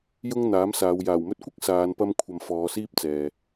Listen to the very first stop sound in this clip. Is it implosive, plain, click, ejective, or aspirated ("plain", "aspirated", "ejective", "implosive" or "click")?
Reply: plain